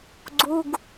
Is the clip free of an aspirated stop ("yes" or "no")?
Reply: yes